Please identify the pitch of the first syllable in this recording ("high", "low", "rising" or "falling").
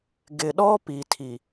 low